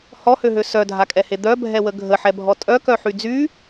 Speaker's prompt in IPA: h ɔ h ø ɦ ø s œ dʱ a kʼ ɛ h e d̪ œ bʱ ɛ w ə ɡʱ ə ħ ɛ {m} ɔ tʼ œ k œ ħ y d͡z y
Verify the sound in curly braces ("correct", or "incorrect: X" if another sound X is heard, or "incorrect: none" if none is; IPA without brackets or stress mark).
incorrect: bʱ